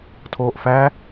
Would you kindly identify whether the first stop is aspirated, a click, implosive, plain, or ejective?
aspirated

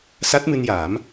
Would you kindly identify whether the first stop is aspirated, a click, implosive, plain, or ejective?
plain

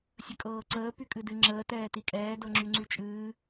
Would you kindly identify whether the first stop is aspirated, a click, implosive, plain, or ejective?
ejective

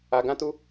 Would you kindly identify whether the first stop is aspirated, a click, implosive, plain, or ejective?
plain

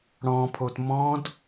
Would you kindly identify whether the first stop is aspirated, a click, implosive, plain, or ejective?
aspirated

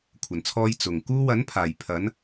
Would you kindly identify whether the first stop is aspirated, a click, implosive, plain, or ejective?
aspirated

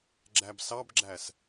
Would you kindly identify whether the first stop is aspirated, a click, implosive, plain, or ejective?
click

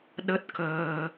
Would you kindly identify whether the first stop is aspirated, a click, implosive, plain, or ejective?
implosive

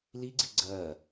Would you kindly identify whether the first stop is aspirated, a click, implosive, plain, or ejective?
click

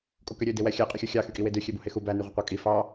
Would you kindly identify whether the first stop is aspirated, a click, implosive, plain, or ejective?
ejective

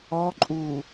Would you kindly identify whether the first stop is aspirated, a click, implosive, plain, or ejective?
click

